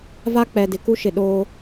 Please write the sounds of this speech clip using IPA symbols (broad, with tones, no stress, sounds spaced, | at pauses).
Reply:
v a˦ k͡p ɛ˨ d ɪ˨ k u˦ ʃ ɪ˨ ɗ oː˦